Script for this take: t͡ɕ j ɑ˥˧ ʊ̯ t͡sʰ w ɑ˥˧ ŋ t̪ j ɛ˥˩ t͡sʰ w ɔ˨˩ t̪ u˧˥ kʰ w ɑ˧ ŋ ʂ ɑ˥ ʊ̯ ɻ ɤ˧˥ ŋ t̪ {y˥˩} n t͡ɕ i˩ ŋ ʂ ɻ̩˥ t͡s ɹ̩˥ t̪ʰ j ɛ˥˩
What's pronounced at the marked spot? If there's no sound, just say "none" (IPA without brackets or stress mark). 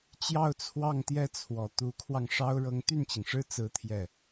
y˥˩